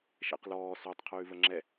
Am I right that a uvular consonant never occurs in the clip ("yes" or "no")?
no